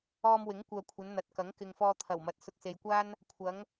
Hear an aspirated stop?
yes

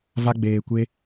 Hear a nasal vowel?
no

